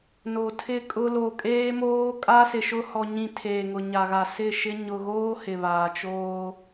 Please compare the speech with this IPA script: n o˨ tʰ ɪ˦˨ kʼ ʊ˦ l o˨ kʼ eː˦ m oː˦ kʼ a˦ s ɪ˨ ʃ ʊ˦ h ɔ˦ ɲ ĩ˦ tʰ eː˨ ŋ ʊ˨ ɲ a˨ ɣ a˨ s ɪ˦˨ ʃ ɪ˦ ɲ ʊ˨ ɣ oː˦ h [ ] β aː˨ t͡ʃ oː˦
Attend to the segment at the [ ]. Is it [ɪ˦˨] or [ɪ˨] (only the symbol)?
ɪ˨